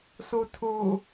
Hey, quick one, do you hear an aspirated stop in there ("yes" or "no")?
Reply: yes